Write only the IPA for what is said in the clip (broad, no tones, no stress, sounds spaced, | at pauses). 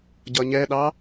ɟ ʌ ɲ ɛ ɗ ɑ